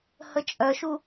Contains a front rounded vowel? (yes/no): yes